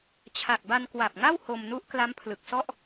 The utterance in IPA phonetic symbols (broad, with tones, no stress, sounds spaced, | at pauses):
t͡ɕʰ a˨˩ k̚ b a˧ n k w a˨˩ p̚ ŋ a˥˩ w h o˧ m n u˦˥ ʔ k l a˦˥ m pʰ l ɯ˨˩ k̚ s ɔ˥˩ ʔ